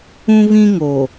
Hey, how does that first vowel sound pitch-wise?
high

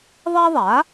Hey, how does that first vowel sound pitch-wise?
high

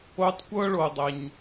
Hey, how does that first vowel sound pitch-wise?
high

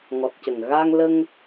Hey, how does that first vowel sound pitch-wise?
low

